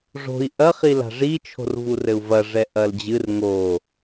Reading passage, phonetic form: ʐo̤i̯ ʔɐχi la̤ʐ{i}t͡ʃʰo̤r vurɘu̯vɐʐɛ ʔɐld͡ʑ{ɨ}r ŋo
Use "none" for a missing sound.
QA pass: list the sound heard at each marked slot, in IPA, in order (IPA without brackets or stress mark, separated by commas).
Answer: i, ɨ